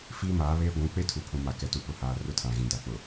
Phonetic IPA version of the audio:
fiː˦maː˨˦βeː˦ ɡʷũ˨˦ k͡pe˦tʰu˨ pʰũ˨ma˨kɛ˨tu˨ pʊ˨haː˨ rʊ˦tʰã˨ɣĩ˨da˨ k͡pʊ˨

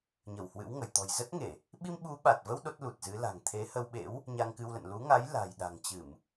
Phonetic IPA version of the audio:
ɲə˧˩w hwɨ̰˧˥wŋə˧˩j t̪ɔ̤˨˩jzə˦˥t̚ŋe˧˩˨ | ɓi˧mɓu˨˦ɓa˨˩t̚və˧w ɗo˦˥t̚lu˨˩t̚zɨ˨˦ la̤˨˩ŋ t̪ʰe˨˦ hə˧wɓḛ˧˥w | ɲa˧ŋkɨ˧wlə̰˧˨n lu˨˦ŋa˨˦j la̤˨˩jɗa̤˨˩ŋt͡ɕɨ˧˩˨m

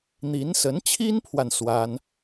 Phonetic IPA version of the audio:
n̪i˧˥nsə˧˥nt͡ɕʰi˥npʰwa˨n swa˥n

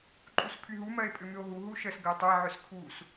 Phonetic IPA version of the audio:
ǃʼuspʰyɦu mɜe̯pʼʏmʏo̯ɦu ɦuʃəs ɡəe̯tˤɛ ʕʏskʰus

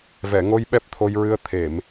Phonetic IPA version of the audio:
vɛ˨˩˨ŋo˧jɓɛ˦˥p̚ t̪ʰo˧jɹɨ˧ə̯ t̪ʰe˨˩˨m

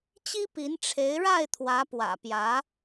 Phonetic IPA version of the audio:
t͡ɕi˥pi˧˥n ʈ͡ʂʰe˧˥ɪ̯ɻa˥˩ɪ̯t̪ʰwä˧˥ pwä̰˨˩pjä˧˥

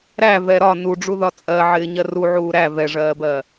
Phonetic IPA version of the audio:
ɾæ vɛɾɒ nuɖ͡ʐuðɒ t͡sʼɜʕɪː ɲɜruʕuː ɾæ vɛʐɜːbɜ

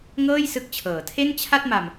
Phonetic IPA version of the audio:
ŋɤː˥˩jsɯ˦˥k̚t͡ɕʰɤː˩˦tʰe˥˩n t͡ɕʰa˥˩t̚ma˧m

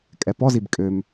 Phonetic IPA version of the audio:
kʼɛpɔzib kʼøm

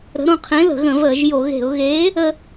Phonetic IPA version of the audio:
ɾə̤˨˥ɾõ˧ qʰẽ˨˥lə̤˧˩˧ɣə̃˧˩˧vəː˧˩˧ʒ jo˧˩˧ɣe̤˧˩˧ʊ̯ ɣeː˨˥ | ə˧

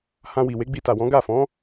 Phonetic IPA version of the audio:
hã˧wi˨ we˨˦ɡ͡bi˧ta˨wɔ̃˨˦ ɡa˦˨fɔ̃˨˦

